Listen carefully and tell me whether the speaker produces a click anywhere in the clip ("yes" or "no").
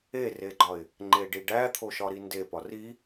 yes